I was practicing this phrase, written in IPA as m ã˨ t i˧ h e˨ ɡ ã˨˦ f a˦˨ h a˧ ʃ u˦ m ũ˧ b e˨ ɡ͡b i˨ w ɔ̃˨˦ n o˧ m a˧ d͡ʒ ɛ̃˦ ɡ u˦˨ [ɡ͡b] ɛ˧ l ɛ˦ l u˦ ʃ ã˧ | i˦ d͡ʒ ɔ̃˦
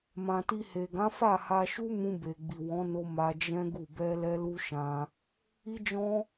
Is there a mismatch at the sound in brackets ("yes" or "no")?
yes